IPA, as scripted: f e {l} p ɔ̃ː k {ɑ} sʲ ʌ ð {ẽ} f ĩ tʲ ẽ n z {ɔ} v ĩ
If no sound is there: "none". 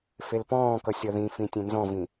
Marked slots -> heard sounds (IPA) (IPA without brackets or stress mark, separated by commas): l, ʌ, ĩ, ɔ̃